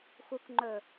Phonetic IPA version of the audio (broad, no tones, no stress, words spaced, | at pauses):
xukŋ͡ǃɵː